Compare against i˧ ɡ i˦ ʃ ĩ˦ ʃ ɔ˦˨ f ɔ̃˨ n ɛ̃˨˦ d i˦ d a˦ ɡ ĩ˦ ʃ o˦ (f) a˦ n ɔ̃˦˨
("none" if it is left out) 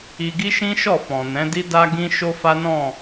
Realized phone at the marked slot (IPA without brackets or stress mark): f